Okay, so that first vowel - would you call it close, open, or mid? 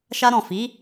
open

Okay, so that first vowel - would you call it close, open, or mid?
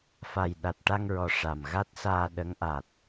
open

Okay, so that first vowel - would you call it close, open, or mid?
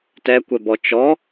mid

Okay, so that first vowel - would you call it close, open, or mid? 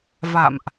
open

